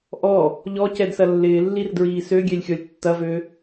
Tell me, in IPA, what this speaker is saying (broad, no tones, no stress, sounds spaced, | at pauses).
ʔ ɔ | ʎ ɔ c ɛ d s ɐ lː ɪː lː i r d ɹ iː s ø ɡʲ ɛ lʲ xʲ ɔ lʲ tː ɐ v ø